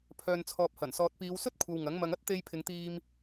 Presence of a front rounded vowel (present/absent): present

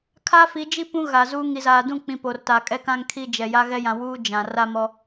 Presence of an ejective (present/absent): present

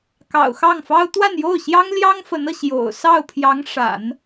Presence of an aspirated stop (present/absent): present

